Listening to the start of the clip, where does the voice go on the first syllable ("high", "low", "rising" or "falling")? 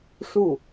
falling